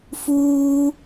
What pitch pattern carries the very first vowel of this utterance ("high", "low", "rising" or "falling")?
high